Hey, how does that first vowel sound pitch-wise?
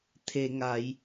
low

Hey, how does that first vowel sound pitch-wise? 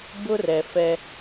high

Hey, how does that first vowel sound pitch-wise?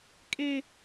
high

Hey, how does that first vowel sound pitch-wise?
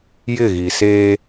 falling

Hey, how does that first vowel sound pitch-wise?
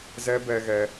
high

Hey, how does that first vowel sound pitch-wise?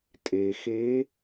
low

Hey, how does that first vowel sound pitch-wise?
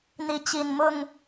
rising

